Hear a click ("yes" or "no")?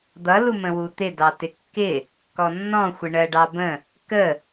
no